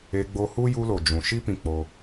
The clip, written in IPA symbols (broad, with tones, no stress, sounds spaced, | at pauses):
e˧ ɡ͡b o˧ h u˦ j u˧ l o˨ d͡ʒ ũ˨ ʃ i˦ p ĩ˧ k͡p o˧